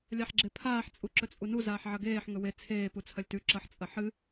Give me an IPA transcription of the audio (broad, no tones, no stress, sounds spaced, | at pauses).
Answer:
lʲ a ħ ɡ͡ǁ e pʰ aː ħ t͡sʼ u ǁ ɵ t͡sʼ u n u z aː ħ ʕ ɐ ɡ eː ħ ŋ ɵ w e t͡sʰ eː p u t͡sʰ ɐ lʲ t ʉ ǁ ɐ ħ t͡sʼ ɐ ħ ɨ